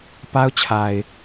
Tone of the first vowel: high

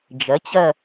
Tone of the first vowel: rising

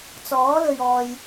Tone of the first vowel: rising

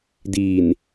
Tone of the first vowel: low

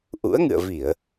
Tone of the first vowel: rising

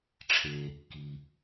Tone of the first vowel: low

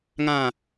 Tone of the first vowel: falling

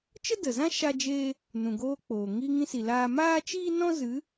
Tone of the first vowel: high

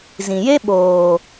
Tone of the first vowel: low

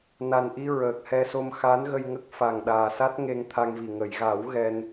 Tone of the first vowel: low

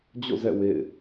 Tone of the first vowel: falling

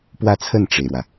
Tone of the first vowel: falling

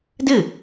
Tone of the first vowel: falling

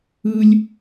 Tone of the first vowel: high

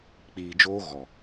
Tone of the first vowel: low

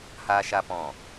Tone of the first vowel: high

